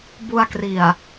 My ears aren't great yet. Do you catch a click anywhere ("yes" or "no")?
no